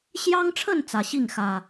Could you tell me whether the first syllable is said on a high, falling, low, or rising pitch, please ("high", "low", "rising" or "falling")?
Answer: high